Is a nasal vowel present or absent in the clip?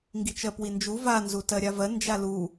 absent